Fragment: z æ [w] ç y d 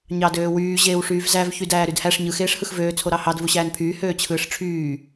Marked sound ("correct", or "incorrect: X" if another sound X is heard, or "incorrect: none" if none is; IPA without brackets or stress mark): incorrect: v